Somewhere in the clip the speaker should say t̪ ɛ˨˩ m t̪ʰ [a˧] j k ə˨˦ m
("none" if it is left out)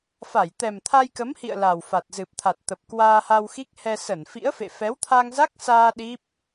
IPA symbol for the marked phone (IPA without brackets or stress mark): a˧